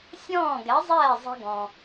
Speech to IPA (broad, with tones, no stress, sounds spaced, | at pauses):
sʲ ɔ̃ː˥˩ ɡ ɛ˩˥ zˤ ɛː˥˩ zˤ ɛ̤˧ ɡ ɔ̃˩